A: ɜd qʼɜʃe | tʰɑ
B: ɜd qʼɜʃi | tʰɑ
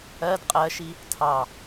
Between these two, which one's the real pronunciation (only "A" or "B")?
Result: B